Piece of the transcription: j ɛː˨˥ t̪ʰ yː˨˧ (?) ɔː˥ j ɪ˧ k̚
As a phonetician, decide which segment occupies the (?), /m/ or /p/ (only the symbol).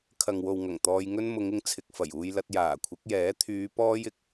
p